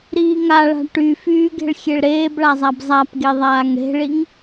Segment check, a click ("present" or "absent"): absent